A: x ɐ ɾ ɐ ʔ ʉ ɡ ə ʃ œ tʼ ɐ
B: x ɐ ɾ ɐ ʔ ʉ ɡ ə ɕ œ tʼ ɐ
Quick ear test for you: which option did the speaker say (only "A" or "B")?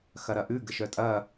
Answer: A